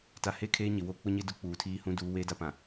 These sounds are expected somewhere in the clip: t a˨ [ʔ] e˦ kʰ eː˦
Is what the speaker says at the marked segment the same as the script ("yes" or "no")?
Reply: no